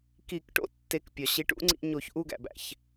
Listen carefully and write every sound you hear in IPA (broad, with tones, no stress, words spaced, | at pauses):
ki˧˩˧kʈo̰˧tːe˩˥kpʲɒ˩ ɕi˩˥ʈṵ˩˥ŋ͡ǀḭ˧ ɲo˧˩˧çʔu˥˧ɡæ̰˩bæ̰˩ç